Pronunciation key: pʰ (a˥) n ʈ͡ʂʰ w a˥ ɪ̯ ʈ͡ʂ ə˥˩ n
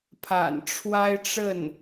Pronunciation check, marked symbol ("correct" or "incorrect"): incorrect